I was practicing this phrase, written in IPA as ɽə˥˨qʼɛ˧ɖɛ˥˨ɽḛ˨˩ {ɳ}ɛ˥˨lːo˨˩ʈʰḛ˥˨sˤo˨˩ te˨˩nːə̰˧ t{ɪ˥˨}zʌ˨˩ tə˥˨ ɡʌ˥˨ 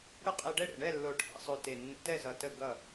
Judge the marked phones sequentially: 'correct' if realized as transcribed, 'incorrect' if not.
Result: correct, incorrect

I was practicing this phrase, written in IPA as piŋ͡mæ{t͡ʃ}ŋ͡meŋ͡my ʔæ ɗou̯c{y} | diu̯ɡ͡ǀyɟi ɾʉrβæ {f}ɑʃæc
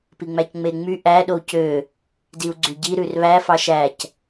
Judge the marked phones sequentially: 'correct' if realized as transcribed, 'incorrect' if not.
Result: incorrect, incorrect, correct

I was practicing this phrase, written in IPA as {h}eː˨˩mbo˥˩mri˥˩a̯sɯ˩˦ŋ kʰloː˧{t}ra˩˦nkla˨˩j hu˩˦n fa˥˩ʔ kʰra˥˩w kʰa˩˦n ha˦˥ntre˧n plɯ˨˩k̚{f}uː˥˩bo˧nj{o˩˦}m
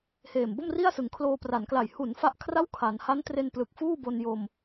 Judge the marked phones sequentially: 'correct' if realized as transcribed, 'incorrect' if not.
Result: correct, incorrect, correct, incorrect

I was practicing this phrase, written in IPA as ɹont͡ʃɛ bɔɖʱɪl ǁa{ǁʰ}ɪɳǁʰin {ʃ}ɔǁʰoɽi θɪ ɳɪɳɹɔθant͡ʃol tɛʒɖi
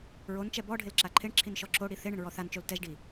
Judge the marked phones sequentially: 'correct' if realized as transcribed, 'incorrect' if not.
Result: incorrect, correct

